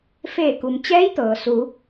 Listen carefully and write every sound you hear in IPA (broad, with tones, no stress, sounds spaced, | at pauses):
f eː˧˩ k u˩ m t͡ɕ ɛː˧˥ j t̪ ɤː˩ s u˩˧